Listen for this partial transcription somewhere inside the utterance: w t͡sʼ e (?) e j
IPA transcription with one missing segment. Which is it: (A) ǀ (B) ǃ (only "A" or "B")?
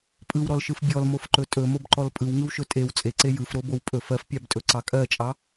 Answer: A